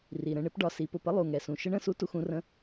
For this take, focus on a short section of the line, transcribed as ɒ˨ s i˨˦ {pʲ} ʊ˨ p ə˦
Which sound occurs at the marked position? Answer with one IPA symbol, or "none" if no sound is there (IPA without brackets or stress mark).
p